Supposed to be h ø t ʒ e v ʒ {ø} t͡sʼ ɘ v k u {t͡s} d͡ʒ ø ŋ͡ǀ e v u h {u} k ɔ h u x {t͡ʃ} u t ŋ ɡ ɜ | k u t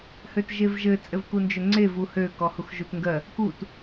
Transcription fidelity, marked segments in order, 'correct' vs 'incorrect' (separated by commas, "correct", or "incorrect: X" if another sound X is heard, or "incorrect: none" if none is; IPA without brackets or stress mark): incorrect: ɘ, incorrect: n, incorrect: ø, incorrect: ʒ